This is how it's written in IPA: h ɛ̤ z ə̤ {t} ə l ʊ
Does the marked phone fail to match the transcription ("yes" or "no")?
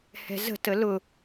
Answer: no